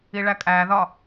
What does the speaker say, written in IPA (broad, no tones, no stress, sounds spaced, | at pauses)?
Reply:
i ɭ æ kʼ æ ð ɒ